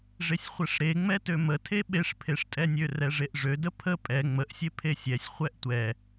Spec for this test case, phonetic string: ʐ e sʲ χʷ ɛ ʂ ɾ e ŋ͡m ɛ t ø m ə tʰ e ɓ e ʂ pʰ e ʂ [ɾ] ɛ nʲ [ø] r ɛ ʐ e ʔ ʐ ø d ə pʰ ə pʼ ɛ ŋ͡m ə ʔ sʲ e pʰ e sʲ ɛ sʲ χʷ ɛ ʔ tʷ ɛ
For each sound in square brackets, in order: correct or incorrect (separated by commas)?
incorrect, correct